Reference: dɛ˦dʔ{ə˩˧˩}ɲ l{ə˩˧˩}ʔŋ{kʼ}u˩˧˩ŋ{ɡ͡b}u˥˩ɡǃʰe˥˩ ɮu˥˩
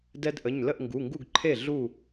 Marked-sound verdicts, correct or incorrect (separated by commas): correct, incorrect, incorrect, incorrect